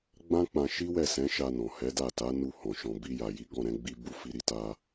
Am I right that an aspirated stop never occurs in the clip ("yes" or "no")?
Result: yes